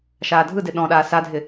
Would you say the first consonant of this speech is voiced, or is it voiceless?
voiceless